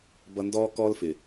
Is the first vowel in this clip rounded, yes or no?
no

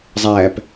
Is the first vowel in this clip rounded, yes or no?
no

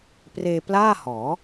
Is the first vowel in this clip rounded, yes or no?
no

